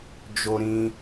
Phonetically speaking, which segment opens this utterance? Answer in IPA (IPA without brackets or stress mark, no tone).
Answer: d͡ʒ